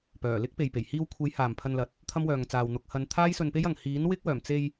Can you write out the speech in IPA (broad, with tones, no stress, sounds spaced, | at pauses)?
p œː˨˩ l ɪ˥ k̚ p e˨ j p e˨˩ j h iː˧ w kʷʰ e˨˥ j h aː˨ m pʰ ɐ˧ n l ɐ˨ t̚ | t̪ʰ ɐ˥ m w œː˨ ŋ t͡s aː˨ w n̪ ʊ˨˥ k̚ h ɐ˨˧ n t̪ʰ aː˥ j s ɵ˧ n p e˥ j ɐ˨ ŋ h iː˨˥ n w ɪ˥ k̚ w œː˨˩ m t͡s e˧ j